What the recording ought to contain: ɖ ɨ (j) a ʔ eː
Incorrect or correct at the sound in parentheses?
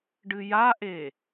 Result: correct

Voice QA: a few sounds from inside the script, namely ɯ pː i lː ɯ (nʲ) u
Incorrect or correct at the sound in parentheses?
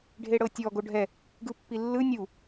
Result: correct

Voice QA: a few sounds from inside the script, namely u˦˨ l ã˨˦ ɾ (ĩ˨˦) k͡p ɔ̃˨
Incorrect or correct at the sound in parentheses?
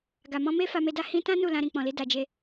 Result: incorrect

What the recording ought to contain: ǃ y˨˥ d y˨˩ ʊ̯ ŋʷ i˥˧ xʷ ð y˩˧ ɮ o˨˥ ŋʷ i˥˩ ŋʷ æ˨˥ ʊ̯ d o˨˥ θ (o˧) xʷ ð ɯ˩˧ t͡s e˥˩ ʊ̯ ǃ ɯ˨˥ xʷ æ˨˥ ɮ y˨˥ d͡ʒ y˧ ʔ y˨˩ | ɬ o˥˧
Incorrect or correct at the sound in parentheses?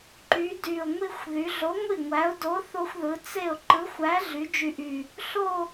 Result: correct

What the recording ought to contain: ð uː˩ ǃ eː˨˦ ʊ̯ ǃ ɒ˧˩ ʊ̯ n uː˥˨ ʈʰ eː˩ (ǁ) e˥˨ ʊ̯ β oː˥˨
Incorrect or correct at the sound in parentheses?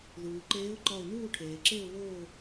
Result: correct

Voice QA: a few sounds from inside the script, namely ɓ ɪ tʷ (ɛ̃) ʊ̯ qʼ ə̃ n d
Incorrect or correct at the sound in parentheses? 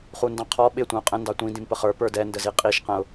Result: correct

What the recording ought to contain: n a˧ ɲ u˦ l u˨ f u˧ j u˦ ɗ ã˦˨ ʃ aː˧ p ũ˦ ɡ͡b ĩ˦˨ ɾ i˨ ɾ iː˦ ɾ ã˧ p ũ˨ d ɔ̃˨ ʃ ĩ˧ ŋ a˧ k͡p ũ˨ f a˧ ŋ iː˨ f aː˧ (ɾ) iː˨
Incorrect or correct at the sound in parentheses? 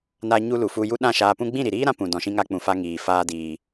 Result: incorrect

